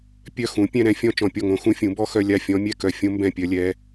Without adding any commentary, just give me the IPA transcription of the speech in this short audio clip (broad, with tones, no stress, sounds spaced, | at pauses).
pʲ œ˥˩ x ũ˩˥ pʲ ɛ̃˥˧ ɾ ɛ̃˦˥ fʲ ɔ̃˥˧ t͡ʃ ɔ̃˧˩ pʲ ɔ˥˩ ŋ õ˩˥ x ũ˦˥ fʲ ũ˩˥ b ɔ˥˧ x œ˥˧ lʲ a˥˩ fʲ ɔ̃˦˥ mʲ ɛ˥˧ k œ˧˩ fʲ õ˦˥ m b ɛ̃˥˩ pʲ œ˦˥ lʲ ɛ˦˥